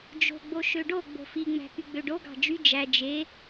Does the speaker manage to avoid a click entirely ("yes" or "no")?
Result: yes